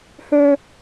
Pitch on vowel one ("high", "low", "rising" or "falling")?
high